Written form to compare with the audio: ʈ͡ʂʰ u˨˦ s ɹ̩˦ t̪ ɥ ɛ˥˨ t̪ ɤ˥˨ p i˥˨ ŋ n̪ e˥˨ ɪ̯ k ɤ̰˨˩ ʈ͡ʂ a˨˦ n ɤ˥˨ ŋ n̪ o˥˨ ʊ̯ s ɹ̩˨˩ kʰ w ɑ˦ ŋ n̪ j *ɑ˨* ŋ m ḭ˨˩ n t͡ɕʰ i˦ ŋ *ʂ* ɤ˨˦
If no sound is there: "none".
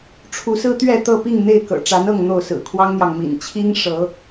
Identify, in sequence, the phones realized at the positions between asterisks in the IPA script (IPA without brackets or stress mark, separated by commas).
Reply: ɑ˨, ʂ